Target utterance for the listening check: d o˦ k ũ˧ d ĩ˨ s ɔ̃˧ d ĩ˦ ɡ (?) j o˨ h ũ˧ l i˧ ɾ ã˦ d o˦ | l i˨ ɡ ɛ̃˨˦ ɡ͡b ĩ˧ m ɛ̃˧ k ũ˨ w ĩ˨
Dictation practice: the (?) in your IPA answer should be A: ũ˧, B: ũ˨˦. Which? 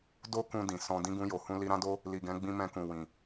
A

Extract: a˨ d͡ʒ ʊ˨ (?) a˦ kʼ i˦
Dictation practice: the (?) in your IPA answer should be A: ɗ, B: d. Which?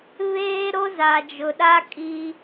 A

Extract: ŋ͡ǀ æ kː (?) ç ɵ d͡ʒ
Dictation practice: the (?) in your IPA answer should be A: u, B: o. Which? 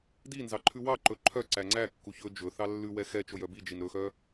A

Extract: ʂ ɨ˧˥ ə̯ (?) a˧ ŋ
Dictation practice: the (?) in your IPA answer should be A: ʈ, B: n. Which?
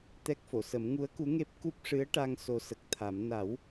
A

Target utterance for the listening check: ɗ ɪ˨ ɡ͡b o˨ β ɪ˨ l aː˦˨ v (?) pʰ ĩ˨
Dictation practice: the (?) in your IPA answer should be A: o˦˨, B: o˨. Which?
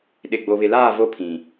A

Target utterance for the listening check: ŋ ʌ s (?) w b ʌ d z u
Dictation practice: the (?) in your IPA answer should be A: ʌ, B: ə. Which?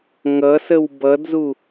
B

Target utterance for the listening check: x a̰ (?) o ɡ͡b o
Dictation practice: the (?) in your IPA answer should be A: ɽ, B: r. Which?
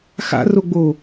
B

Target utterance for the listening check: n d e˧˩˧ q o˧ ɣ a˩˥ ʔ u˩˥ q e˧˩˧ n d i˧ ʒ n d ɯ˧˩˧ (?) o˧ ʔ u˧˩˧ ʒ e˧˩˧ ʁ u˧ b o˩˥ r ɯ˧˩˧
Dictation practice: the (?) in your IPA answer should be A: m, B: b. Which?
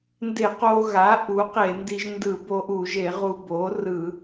B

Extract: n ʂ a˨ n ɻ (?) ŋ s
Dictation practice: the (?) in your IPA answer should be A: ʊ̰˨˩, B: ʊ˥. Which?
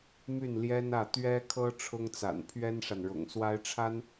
A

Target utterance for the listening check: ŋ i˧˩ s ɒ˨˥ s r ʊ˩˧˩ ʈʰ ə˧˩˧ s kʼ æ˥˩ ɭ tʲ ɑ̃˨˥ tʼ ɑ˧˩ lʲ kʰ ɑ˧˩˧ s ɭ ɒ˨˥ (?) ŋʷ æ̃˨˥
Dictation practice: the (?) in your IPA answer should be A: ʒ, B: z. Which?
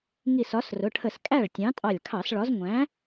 B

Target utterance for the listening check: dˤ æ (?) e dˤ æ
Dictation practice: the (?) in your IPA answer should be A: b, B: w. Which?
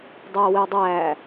B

